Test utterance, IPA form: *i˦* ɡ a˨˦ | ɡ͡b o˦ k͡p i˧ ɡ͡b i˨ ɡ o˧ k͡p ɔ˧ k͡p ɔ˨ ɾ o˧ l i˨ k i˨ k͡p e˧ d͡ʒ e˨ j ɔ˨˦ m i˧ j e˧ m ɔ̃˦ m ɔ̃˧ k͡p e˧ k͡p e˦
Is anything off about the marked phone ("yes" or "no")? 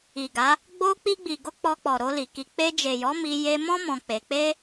yes